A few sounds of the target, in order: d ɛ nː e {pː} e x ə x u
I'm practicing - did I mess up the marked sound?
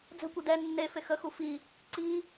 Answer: yes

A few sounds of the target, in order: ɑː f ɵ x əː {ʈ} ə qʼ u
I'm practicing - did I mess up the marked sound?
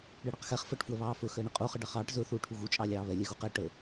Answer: yes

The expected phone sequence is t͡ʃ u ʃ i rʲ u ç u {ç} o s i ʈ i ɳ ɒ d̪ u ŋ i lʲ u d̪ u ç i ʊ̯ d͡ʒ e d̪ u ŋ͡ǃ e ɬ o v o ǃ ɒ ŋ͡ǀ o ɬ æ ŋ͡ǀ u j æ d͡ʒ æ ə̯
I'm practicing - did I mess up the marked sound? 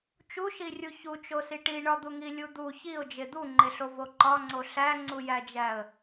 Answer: yes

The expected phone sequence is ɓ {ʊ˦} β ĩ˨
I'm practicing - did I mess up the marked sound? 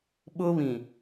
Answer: no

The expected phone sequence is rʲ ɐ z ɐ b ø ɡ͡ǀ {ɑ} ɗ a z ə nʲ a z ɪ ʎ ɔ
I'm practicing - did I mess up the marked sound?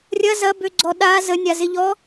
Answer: yes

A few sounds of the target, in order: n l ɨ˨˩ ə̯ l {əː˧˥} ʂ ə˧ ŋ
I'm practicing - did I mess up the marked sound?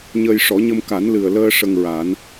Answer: yes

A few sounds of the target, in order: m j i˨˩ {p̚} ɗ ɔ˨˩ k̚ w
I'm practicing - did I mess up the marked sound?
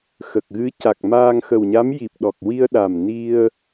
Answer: no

